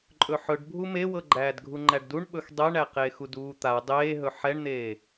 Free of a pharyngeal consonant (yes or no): no